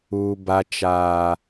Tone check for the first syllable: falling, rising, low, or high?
low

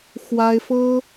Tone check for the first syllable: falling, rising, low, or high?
high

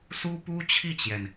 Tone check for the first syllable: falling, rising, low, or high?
high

